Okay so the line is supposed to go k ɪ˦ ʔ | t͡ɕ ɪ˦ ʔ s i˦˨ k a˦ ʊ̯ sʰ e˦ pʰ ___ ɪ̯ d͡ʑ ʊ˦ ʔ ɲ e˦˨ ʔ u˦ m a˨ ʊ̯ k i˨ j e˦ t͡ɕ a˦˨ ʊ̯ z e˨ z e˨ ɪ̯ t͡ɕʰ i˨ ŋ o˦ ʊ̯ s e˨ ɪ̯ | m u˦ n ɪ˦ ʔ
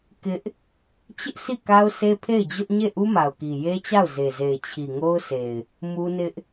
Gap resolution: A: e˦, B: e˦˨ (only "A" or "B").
B